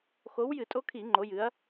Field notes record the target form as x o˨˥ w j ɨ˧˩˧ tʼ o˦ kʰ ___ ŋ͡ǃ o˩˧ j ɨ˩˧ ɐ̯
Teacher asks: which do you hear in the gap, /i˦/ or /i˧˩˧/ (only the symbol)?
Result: i˧˩˧